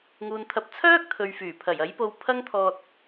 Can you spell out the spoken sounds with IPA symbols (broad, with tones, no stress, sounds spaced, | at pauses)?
ŋ uː˨ n t̪ʰ ɐ˨˥ p̚ t͡sʰ œː˥ k̚ t̪ʰ ɵ˨ ɥ f yː˨˩ pʰ ɐ˨˩ j ɐ˨˥ j p o˧ w pʰ ɐ˥ ŋ t̪ʰ ɔː˧ t̚